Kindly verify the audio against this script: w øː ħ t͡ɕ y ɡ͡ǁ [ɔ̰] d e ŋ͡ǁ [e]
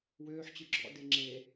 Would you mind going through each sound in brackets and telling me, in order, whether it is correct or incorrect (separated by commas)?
correct, correct